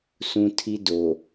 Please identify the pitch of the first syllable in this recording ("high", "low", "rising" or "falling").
high